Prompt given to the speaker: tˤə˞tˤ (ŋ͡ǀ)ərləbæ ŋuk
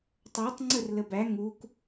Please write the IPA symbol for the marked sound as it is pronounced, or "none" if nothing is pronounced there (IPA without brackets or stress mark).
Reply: ŋ͡ǀ